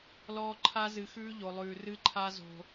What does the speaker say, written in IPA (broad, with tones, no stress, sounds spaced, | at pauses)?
l ɔː˧ ǃʰ a˧ z ɨ˨ x ʉː˧ ʎ o˨ lˠ ʉː˨ r ɨ˧ ǃʰ a˧ z o̤˨